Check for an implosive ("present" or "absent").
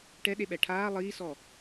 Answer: present